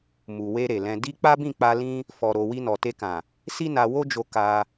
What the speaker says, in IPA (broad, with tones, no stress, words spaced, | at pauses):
mu˨we˧ ɾe˨lɛ̃˧ di˦ k͡pa˦bĩ˦˨k͡pa˧ lĩ˦ | fɔ˧ɾo˧ wi˧nɔ˨ te˧kã˨ | si˦na˧wo˦d͡ʒo˧ ka˧